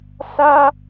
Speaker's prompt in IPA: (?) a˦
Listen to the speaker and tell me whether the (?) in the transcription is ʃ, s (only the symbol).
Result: s